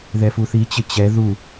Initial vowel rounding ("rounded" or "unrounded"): unrounded